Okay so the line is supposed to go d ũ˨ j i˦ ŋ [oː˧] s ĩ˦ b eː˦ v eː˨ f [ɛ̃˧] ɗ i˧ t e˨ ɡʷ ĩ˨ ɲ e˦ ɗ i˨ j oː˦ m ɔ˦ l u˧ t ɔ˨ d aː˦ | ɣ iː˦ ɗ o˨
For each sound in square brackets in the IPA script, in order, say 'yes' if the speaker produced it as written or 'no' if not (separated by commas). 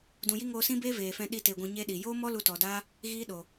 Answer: yes, yes